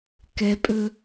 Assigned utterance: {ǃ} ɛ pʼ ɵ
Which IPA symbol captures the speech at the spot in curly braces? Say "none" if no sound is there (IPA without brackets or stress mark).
k